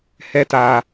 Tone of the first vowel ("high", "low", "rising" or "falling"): high